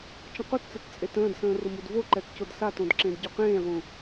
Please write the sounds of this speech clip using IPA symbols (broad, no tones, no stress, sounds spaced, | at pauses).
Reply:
t͡ʃ ə̃ q ʊ t t͡s ə t t͡sʼ e t ə̃ː d s ə̃ː r ʊ m u d v o ǃ ɛ t c ʊ d s a t õ d ǁ ẽ d ɟ ʊ q ẽː ʁ ũ